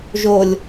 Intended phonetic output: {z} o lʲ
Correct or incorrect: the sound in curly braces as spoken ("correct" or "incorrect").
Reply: incorrect